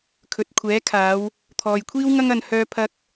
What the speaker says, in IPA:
kʰ ɵ˨ t̚ kʷʰ ɛː˨˥ kʰ aː˨˧ w | t̪ʰ ɔː˨ j kʷʰ iː˥ w ŋ ɐ˥ ŋ ɐ˧ n h œː˥ pʰ ɐ˥ k̚

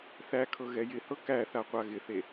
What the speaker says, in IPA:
θ æ kʰ ɤ ɣ ɛ j ɪ h ɤ k æ θ a qʷ a ɣ ɪ θ e

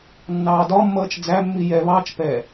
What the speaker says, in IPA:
nː ɑː d ɒ mː ʌː t͡ʃ d͡z æ mː i j ɛ β ɑː t͡ʃ p ɛ

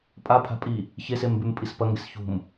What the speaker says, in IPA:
pʼ a pʰ a̤ pʼ i | ç e s e m b ʉ m pʼ i s p ɐ ŋ ɡ e s ç ṳ m

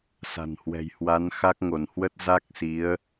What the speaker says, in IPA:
s a̤˨˩ n h w ɛ̤˨˩ j h w a˨˦ n x a˦˥ k̚ ŋ o˧˩ n h w ə˦˥ t̚ z a˦˥ k̚ s i˨˦ ə̯

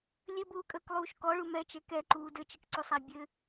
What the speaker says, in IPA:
lʲ ɘ b uː kʼ əː k lˠ uː ʃ k ɔ ɭ u m ɛ t͡ʃ ɛ k ɛ ǃ uː d ɘ t͡ʃ ɘ k ǀ u sˤ æ bʲ ɘ

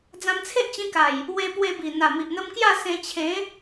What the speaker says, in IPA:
d͡z ã˧ m t͡sʰ e˦ ʔ t͡ɕ ĩ˧ k a˨˩ j | w e˧ p w e˧ b i˨˩ n̪ a˨˩ m i˨ ʔ n̪ ə˧ m k j a˥˧ s ẽ˧ t͡ɕʰ ẽ˨˦

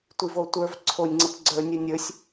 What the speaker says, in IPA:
tʷ i v o tʷ ə˞ v ǀʰ o nʲ ŋ͡ǀ ə p ɡ͡ǀ ə˞ nʲ ɯ nʲ ə˞ sʲ

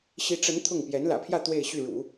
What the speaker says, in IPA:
ɕ i˧˥ ʈ͡ʂ ə˧˥ n t̪ʰ ʊ˥˩ ŋ p j ɛ˧˥ n l ä̰˨˩ pʰ j ä˥˧ t̪ w e˥˧ ɪ̯ ɕ y˥˩ ɻ ṵ˨˩˦

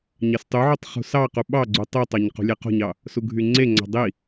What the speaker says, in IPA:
ɲ ɑ s tˤ u ʕ o tˤ χ ṳ s ɑ q u ɓ ɑ ɡ͡ǀ u tˤ ɯ tˤ ɑ ɲ q ṳ lʲ e q o̤ ɲ ɑ | s u ɡʱ y ŋ͡ǀ e ŋ͡ǀ ɑ̤ dˤ i

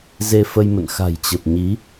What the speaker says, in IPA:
z e˧ f ə˧ j m ə̰˧˨ n x a̤˨˩ j t͡ɕ ə˨˩ p̚ ɲ i˨˦

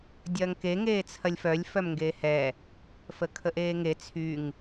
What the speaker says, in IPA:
dʲ ɐː ŋ k e ŋ eː t͡sʰ ɐ lʲ f œ lʲ f œ m ŋ ɡ eː h ɛ | f ə kʰ ə ʔ eː ŋ e t͡sʰ y ŋ

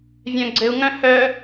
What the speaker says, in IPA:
vʲ œ̃ ɡ͡ǀ ɘ u̯ ŋ œ̃ h œ

